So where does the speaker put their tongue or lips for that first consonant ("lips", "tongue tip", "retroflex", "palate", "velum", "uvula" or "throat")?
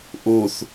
throat